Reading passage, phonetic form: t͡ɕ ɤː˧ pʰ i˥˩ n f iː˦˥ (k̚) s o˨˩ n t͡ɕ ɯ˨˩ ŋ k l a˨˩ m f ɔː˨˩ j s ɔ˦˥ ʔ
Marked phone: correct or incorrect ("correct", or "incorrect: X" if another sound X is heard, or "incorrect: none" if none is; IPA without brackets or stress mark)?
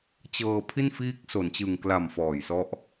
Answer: correct